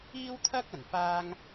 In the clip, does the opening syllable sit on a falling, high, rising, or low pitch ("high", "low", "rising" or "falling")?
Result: high